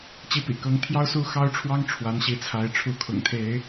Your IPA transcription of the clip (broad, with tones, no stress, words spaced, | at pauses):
t͡ɕi˨˦pḭ˨˩ kɤ˨˦ŋt̪ʰjɑ˦ʊ̯su˥˨ xɑ˦ʊ̯ʈ͡ʂʰwɑ˦ŋ ʈ͡ʂʰwa˨˦nɕi˨˦t͡sʰa˨˦ɪ̯ ʈ͡ʂʰu˨˦kʰʊ̰˨˩ŋt̪ʰe˨˦ɪ̯